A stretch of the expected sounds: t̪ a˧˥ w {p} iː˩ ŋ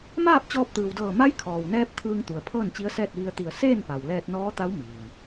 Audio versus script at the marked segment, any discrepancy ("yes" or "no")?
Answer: yes